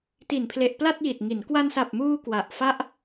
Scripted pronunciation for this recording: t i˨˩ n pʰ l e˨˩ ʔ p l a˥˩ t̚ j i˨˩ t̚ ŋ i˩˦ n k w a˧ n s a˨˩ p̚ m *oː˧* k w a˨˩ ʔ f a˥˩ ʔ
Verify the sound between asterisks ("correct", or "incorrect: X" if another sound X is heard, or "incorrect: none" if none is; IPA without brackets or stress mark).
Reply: incorrect: uː˧